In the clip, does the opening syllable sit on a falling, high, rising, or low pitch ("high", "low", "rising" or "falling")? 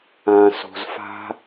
low